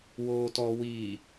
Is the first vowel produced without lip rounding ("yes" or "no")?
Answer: no